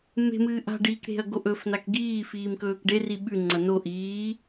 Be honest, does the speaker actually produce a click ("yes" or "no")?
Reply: yes